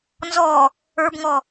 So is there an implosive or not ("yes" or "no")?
no